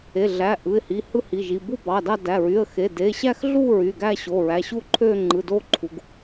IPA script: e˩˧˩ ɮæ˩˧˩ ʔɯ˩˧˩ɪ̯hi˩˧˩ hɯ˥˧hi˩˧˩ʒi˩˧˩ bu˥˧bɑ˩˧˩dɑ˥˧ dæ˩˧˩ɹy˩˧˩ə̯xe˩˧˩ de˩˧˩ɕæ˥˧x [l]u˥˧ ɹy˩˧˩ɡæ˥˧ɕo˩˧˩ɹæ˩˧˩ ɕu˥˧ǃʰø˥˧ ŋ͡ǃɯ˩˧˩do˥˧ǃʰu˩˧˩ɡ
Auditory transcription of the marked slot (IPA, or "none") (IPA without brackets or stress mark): ɮ